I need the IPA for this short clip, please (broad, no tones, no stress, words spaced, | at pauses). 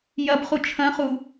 jɐbχu t͡ʃʰɐ̃χu